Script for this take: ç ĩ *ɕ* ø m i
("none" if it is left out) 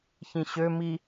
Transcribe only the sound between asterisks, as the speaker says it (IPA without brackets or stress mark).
ɕ